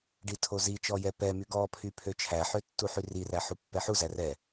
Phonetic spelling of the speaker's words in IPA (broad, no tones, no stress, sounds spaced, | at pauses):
ɖ i tʰ o z i t͡ʃ ɔ j ɛ p ɛ m y ɡ ɔ pʰ y pʰ ø t͡ʃʰ æ ħ ø tː u ħ y r i r æ ħ u pː ɛ ħ u z æ r ɛ